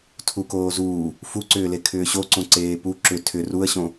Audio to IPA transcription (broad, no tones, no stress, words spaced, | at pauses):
tʰukoːzuː | fuǀʏːle kʰʏːɕoǀõ ǀeːpu ǁʏ tʰʏ ruə̯ɕõ